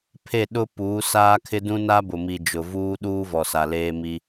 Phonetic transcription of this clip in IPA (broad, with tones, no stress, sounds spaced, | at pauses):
pʰ e˦˨ ɗ ʊ˦ p uː˨˦ s aː˦ kʰ ɪ˦ d ũ˦ n a˦ b ʊ˨ m i˨ d͡ʒ ʊ˨ v uː˦ ɗ uː˦ v ɔ˨ s a˨ l eː˦ m i˦